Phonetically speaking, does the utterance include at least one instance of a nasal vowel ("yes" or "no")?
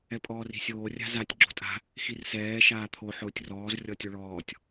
no